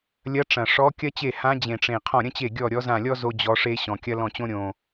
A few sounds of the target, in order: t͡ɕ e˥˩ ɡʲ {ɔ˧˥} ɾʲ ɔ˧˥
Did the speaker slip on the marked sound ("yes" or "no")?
yes